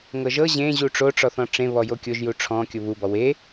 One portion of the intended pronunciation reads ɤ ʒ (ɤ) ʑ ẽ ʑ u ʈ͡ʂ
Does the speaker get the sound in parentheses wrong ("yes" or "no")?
no